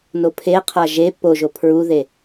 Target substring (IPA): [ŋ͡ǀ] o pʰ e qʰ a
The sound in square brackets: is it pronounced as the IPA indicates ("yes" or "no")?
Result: no